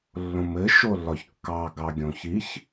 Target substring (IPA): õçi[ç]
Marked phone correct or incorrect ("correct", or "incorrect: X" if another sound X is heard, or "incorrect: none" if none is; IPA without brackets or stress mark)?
correct